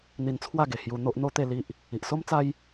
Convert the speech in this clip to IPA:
n̪ i˧ n t͡sʰ w a˥˧ ɡ e˨˩ h j u˧ n̪ o˦ ʔ n̪ o˦ t̪ e˥˧ l i˦ ʔ | i˨ ʔ s o˦ m t͡s a˦ j

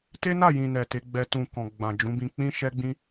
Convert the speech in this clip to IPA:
t e˦ n a˦˨ j ĩ˨ n ɛ˨ t e˨˦ ɡ͡b ɛ˧ t ũ˨ k ɔ̃˨ ɡ͡b ã˨ d͡ʒ ũ˨˦ b ĩ˧ k͡p ĩ˦ ʃ ɛ˦ ɡ͡b ĩ˦

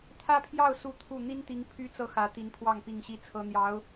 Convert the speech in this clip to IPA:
t̪ʰ ä˥ pʰ j ɑ˥˧ ʊ̯ s u˥˧ t̪ʰ u˥˩ n̪ i˥ n t̪ i˧˥ ŋ pʰ y˥ t͡s ɤ˥˩ x ä˧˥ t̪ i˧˥ n pʰ w ɑ˥˧ ŋ p i˥˧ ŋ ɕ i˥˩ t͡sʰ ɤ˥ n̪ j ɑ˧˥ ʊ̯

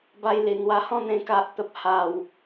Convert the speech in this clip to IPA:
b a˧ j l i˨˩ n̪ w a˧ h ɔ̃˥˧ n̪ ẽ˧ k a˨ ʔ t̪ ə˨ p̚ h a˨˩ w

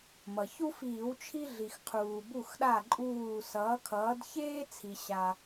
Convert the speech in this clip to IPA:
m ʌ˩ ç u˦ f iː˧˩˧ w t͡ʃʰ i˦ ɮ i˩ x qʰ uː˩ b u˧˩ x ɗ a˧˩ ǃʼ uː˧˩ s ʌː˩˧ kʰ ʌː˩˧ d ç eː˦ t͡sʰ i˩ ɕ a˩

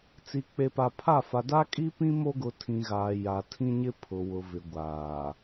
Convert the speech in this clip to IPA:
t͡s i˨ k͡p e˨ p a˨ pʰ a˦˨ f a˨ d a˦ kʼ i˦ p ĩ˦ m o˦ ɡ ʊ˨˦ tʰ ĩ˨ ɣ aː˨ j a˨ tʰ ĩ˦ ɲ ɪ˦ pʰ ʊ˨ w ʊ˨ v ɪ˨ ɡʷ aː˨

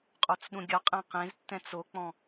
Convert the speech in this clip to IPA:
qʼ o t͡s ɗ ũ ɡʲ ɔ qʼ ɛ̃ q ẽ z tː ɛ̃ t͡s o k͡p ɔ̃

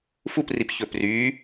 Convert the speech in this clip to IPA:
f u p r i p ç ɵ p r y

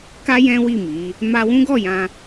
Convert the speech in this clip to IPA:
k a˦ j ɛ̃˦ w i˦˨ m i˨˦ | m a˧ w ũ˦ ɡ ɔ˦˨ j ã˧

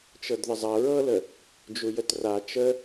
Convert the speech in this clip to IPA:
t͡ʃ ɤ d ð ə zˤ ɐ ɹ ɤ l ə | d͡ʒ u j ə t r a t͡ʃ ə

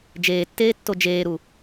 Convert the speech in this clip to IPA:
d͡ʒ eː tː eː tː o d͡ʒ eː ɾ u

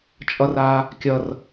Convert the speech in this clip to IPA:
t͡ʃʼ ʌ r a | kʲ ʌ r

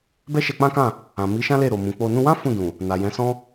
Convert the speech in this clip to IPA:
b ɛ˦ ʃ ɛ˧ k͡p ã˦ k ã˦˨ | ã˨ m i˨˦ ʃ ã˦ l e˦˨ ɾ o˨ m ũ˨ k͡p o˧ n ũ˧ w ã˦ f ũ˦˨ d ũ˨ | n a˨ j ɛ̃˨˦ s ɔ̃˦

